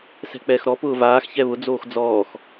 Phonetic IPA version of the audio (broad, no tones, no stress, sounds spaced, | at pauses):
s ɛ̤ k͡p ɛː x ɾ ɔ p ʊː v aː x ç ɛ β ʊ d͡z oː x d͡z ɔː x